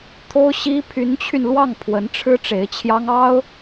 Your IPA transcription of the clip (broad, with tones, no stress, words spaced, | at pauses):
t̪ʰo˥ʊ̯ɕi˥ pʰy˧˥nt͡ɕʰy˧n lwɑ˥˩ŋpʰwə˧˥nʈ͡ʂʰɻ̩˥ ʈ͡ʂe˧˥ɪ̯t͡ɕʰjɑ˥ŋɑ˥ʊ̯